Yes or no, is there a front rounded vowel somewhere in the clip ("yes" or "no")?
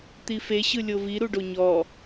no